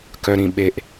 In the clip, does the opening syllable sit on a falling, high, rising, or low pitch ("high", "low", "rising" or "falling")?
low